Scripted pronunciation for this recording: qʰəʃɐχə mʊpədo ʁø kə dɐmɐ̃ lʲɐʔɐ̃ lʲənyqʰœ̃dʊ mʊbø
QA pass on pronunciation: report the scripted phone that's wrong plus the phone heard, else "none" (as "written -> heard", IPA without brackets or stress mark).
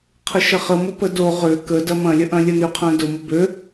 none